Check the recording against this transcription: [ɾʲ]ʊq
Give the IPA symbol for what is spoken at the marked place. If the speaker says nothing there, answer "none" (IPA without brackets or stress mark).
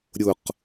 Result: ɾʲ